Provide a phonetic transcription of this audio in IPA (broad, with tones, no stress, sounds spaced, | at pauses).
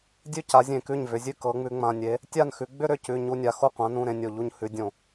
dʲ ʉ˥˩ c a˨˦ zʲ ẽ˧˩ k ʉ˥˩ ɲ v ʏ˨˦ zʲ ʉ˥˩ k ɤ˨˦ ŋ͡m ʉ˨˦ ŋ͡m ã˩˧˩ nʲ e˨˦ | tʲ a˥˩ n x ʉ˨˦ ɡ͡b ʏ˥˧ ɾ ʏ˩˧˩ c ʉ˩˧˩ ɲ u˥˧ nʲ a˩˧˩ x o˥˩ qʷ ã˨˦ n ũ˩˧˩ ɾ ẽ˥˧ nʲ o˧˩ ʎ u˥˩ ɲ h ʉ˨˦ dʲ õ˧˩˧